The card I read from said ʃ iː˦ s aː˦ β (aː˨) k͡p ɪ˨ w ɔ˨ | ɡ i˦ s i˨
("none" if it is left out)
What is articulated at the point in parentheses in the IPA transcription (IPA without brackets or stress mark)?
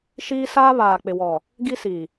aː˨